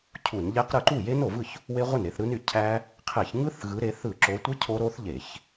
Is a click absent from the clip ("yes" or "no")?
no